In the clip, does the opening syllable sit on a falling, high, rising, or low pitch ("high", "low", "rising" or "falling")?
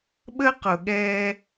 high